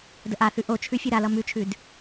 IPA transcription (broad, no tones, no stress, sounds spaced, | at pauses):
d ə ʔ a θ ʉ ʔ o t͡ʃʰ ʉ fʲ ʉ ɾ a l ʌ m ʉ t͡ʃʰ ʉ d